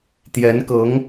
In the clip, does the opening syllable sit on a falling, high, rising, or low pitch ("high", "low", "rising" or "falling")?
rising